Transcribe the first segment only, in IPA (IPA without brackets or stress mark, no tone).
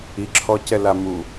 i